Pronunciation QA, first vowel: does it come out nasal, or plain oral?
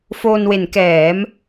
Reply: oral